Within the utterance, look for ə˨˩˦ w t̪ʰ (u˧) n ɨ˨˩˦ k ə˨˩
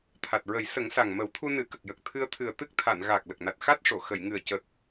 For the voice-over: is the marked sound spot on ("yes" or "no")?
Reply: yes